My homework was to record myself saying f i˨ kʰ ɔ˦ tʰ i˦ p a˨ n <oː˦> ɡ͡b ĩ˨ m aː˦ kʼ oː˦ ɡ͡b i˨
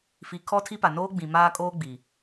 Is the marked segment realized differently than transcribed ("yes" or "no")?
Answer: no